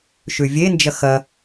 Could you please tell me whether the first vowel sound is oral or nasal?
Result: oral